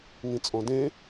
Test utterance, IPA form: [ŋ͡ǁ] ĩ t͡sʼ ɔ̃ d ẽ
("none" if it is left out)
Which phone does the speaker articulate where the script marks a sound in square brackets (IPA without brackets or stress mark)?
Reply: ŋ